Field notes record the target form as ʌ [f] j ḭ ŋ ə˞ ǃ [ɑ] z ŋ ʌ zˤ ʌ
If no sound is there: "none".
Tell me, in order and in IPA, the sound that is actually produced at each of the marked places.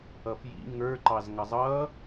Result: f, ɑ

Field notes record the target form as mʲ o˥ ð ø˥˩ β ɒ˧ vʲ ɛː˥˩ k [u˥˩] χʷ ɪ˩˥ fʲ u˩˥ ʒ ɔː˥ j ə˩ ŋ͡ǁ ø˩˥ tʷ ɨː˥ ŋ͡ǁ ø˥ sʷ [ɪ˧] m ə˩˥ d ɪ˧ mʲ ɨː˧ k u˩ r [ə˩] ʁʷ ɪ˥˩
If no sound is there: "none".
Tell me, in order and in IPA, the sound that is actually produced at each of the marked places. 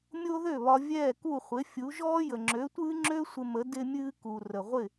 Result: u˥˩, ɪ˧, ə˩

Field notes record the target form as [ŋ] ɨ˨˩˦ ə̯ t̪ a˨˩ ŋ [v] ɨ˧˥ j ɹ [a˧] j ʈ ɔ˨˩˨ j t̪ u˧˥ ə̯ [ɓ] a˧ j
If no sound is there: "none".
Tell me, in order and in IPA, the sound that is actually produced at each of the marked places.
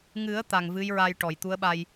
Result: ŋ, v, a˧, ɓ

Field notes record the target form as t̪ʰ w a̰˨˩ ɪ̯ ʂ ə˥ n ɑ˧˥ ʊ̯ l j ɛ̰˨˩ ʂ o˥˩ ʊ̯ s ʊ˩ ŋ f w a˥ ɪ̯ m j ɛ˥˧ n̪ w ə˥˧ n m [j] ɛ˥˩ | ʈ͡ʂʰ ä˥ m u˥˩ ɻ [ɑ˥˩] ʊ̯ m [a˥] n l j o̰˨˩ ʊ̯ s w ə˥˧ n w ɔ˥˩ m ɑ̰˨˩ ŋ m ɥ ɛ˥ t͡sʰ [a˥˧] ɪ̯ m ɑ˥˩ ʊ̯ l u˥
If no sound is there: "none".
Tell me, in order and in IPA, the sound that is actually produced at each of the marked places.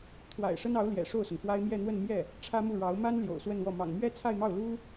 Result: j, ɑ˧˥, a˥, a˥˧

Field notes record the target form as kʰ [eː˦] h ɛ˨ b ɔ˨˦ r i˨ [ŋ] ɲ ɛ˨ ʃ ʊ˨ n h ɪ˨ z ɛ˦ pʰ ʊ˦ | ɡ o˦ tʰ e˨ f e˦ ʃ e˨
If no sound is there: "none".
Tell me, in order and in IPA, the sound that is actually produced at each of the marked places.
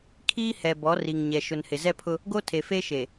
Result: iː˦, ŋ

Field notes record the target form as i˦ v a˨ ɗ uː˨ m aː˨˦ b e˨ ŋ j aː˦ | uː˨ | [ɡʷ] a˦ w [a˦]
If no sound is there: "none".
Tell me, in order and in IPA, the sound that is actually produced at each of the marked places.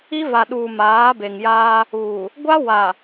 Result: ɡʷ, a˨

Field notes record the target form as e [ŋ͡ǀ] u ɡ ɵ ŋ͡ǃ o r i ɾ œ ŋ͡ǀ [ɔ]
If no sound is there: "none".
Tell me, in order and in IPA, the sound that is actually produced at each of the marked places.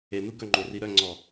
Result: n, ɔ

